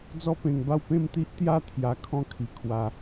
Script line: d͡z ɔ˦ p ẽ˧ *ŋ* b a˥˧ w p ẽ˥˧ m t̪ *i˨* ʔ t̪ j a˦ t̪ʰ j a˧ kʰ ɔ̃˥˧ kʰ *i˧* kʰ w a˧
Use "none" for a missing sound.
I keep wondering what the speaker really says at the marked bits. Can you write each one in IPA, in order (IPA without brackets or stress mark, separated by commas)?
ŋ, i˦, i˧